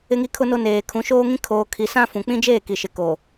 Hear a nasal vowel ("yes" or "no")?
yes